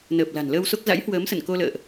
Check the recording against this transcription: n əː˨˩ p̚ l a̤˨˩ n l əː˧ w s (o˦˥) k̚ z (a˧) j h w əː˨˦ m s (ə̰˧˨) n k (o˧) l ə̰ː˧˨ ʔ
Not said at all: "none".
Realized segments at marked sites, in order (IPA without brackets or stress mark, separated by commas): o˦˥, a̰˧˥, ə̰˧˨, o˧